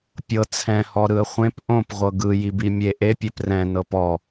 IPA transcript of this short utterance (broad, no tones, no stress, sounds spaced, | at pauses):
pʲ ɤ t͡sʰ ɛ̃ h ɔ ɾ ɯ ə̯ χʷ ẽ p ʔ õ p ʁʷ ɤ ɡ ɯ j i b i mʲ e ʔ e pʲ e p r ɛ̃ n ɤ p ɔ